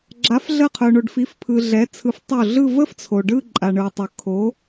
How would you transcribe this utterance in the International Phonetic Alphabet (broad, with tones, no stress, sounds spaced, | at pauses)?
ɡ͡ǁ a˩˥ f ɮ ə˧˩ qʰ œ˩ ɳ o˩ ɖ f i˩˥ f pʰ ɯ˩ ɮ ɛ˩˥ t͡sʰ ɯ˩˥ f tˤ o˧˩ ɮ ɯ˥˧ v ə˥˧ f t͡sʰ o˩ ɖ ɯ˥˧ ǃʼ a˩ ɳ ɯ˩ tˤ ø˩ kʰ o˩˥